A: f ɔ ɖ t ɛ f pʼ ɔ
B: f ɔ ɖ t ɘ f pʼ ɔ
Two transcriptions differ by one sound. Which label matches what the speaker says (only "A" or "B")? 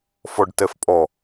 A